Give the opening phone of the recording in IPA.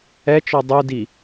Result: ɛ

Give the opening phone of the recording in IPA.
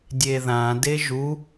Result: dʲ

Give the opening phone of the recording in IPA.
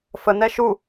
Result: f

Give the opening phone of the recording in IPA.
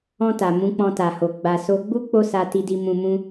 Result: ɔ̃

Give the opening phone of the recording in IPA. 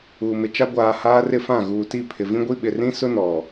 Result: uː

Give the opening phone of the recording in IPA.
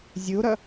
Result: zʲ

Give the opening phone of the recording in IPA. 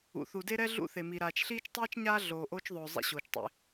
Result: ṵ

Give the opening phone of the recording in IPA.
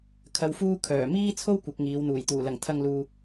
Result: kʰ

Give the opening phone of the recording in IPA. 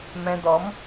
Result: m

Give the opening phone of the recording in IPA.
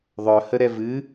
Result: ðˤ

